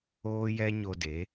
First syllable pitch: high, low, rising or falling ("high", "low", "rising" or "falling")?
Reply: high